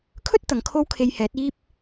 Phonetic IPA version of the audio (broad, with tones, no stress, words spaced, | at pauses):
kʰɵ˥t̚ t̪ɐ˨˧ŋkʰo˥wkʰe˧j hɛː˨˥t̚iː˥p̚